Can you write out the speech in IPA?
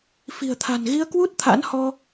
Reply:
f i̤˨˩ ə̯ t̪ʰ a̤˨˩ n ɣ i˧ ə̯ k w u˦˥ t̚ t̪ʰ a̰˧˥ n h ɔ˧

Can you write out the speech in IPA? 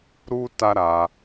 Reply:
ɾ u˦ t a˦ ɾ a˧

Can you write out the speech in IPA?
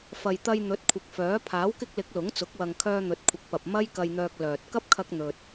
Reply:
f ɐ˨ j t̪ ɐ˧ j n̪ ɵ˨˥ t̚ kʷʰ ɪ˨ k̚ f œː˨˥ pʰ aː˨˥ w k ɪ˧ k̚ l ɪ˨˥ k̚ l ʊ˨˥ ŋ t͡s ʊ˨˥ k̚ w ɐ˨ ŋ kʰ œː˧ n̪ ɵ˨˥ t̚ kʷʰ ɪ˨˥ k̚ p ɐ˨ p̚ m ɐ˥ j k ɐ˧ j n̪ œː˧ k̚ l œː˨ t̚ k ɐ˥ p̚ kʰ ɐ˧ k̚ n̪ ɵ˨ t̚

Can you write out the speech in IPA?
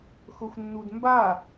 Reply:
x ʊ xʷ nː u d m b a

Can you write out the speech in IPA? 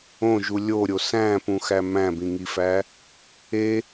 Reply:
õ ʒ u lʲ o ɾʲ o s æ̃ p ũ x æ m æ̃ b ĩ ŋ i f æ | e

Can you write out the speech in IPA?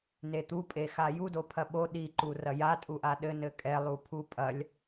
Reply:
n e t̪ u pʼ e x a j u d o pʰ ɐ ɓ o ɗ i ǃ u r ɐ j a tʼ u ʔ a ɗ ɘ n ɘ kʼ ɛ lˠ u pʰ u pʼ ɐ lʲ

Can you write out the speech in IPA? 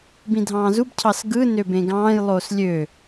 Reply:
b ĩ dʱ ɑ̃ː z u b cʰ ɑ s ɡ ɯ n ø b ẽ ɡ ɑ̃ː j lˠ oː s lʲ ø

